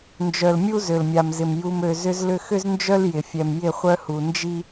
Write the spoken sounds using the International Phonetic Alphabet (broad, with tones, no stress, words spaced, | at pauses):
nd͡ʒœ˨lmʲu˦ zø˨lmʲa˨mzɪ˨m ju˨mø˨ zʏ˦z lʏ˦ xʏ˦znd͡ʒœ˦l jɪ˨fʲɛ˨m jɪ˦˨χʷœ˦hu˨ nd͡ʒi˦